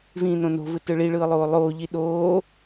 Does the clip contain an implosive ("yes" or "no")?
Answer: yes